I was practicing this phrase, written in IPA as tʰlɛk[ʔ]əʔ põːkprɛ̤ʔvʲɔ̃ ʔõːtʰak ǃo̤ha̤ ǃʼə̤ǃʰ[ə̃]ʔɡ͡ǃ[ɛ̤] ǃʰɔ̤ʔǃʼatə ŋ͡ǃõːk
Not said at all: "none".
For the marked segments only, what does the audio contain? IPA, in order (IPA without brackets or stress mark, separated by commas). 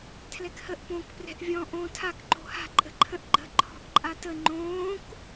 h, ə̃, ə̤